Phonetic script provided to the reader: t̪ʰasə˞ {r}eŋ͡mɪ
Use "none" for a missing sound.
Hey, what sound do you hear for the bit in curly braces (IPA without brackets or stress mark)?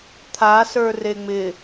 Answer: r